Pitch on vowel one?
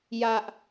high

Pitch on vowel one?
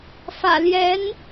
low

